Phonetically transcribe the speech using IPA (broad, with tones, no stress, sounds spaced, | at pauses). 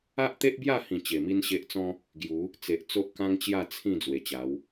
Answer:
a˦ ʔ t̪ e˦ ʔ b j a˥˧ h ĩ˨˩ t͡ɕ e˨˩ m i˦ n ɕ e˦ ʔ t͡s ɔ̃˦ | ɡ j u˨˦ | t͡s e˨ ʔ t͡s o˦ ʔ k ã˦ ŋ t͡ɕ j a˥˧ t͡sʰ ĩ˥˧ d͡z w e˨˩ t͡ɕ a˨˦ w